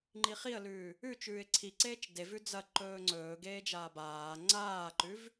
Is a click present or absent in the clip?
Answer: present